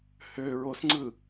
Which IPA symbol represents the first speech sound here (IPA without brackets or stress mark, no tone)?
h